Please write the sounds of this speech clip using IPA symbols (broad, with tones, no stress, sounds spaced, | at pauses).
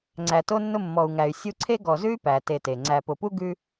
ŋ͡ǀ æ˨ t o˦ nː ʊ˦ mː ɔ˨ u̯ ŋ æ˨ y̯ sʲ u˦ ǀʰ e˥ ɡ ɔ˨ z ʉ˥ y̯ p æ˩ t e˨ t e˩ ŋ͡ǀ æ˨ p ʊ˨ p u˥ ɡ ʉ˥